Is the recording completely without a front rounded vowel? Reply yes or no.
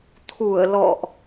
yes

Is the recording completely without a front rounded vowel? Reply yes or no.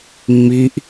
yes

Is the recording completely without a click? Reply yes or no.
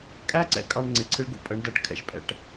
no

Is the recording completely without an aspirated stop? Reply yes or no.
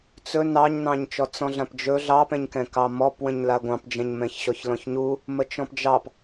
yes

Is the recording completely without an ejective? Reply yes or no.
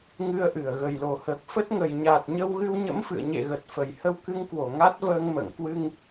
yes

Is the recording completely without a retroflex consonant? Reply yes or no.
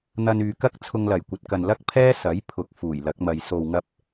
yes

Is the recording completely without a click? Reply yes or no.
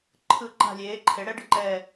no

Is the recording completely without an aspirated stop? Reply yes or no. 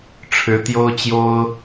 no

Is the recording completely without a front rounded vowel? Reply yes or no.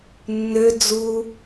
no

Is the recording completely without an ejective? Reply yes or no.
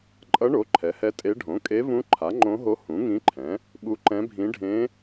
no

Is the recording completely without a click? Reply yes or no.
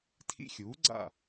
no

